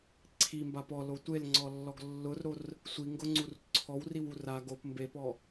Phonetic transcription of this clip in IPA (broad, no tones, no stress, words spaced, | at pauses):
ǀʰimbap ɔlo tʷelŋ͡ǀɔlːɔɡ lːʊrɾor | sʷiŋɡʊŋ͡ǀur ǀʰɔwriwur a ɡop mbepɔ